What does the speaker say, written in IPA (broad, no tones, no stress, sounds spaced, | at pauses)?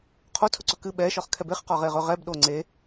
qʰ o tʰ ɵ ǀ ɵ k ɨ ɓ ɛ ʃ ɒ χ kʰ ɛ b e χ q ɒ ʁ e ʁ ɵ ʁ ɛ b ɗ o ŋ͡ǀ e